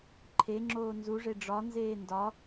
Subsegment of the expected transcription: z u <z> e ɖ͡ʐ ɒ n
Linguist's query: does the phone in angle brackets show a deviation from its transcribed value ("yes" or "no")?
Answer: yes